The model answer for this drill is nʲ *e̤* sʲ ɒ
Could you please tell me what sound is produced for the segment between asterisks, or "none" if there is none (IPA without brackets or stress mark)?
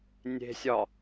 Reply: e̤